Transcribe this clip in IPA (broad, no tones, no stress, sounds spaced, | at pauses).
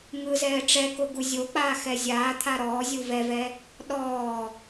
ŋ ɯ z ɛː ʈ͡ʂ ɛ k o ɡ u zʲ o k͡p aː x ɛ zʲ aː t̪ʰ a ɾ ɔː zʲ u v ɛ v ɛ | ɗ ɔː